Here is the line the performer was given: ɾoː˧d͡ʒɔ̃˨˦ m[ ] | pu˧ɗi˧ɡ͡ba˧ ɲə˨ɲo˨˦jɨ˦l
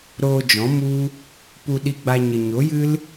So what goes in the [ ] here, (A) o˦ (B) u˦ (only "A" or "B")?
B